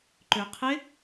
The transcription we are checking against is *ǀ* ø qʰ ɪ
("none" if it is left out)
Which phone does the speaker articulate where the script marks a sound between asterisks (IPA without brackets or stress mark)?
ǃ